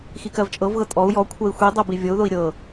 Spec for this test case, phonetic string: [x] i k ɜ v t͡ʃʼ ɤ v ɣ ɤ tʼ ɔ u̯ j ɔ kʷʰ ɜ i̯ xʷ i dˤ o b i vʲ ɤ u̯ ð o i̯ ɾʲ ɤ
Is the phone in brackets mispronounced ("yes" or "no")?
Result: no